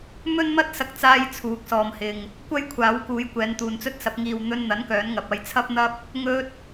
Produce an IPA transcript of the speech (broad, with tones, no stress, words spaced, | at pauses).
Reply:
mɵ˥nmɐ˥t̚sɐ˧k̚t͡saː˧j t͡sʰuː˨˥k̚sɔː˨mhɪ˨ŋ | kʷɐ˥jkʷʰaː˨˥wkuː˨˧jkʷɛː˨˧n t̪uː˨nt͡sɵ˥t̚sɐ˨˥p̚ ŋiː˨wn̪ɵ˧nn̪ɐ˨˥n kœː˨˥nŋɐ˨p̚ɐ˧j t͡sʰɐ˥p̚n̪ɐ˥p̚ | ŋɵ˥t̚